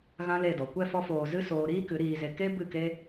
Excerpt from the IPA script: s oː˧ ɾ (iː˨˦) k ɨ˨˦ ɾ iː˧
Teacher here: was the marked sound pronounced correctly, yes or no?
no